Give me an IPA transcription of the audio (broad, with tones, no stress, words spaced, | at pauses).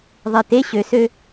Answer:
ðˤe˨te˦ ɕø˨sø˦